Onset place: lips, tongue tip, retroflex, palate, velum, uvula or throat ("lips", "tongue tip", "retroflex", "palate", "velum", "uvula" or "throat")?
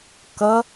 velum